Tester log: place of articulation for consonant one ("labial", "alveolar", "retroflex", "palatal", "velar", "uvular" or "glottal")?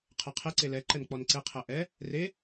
uvular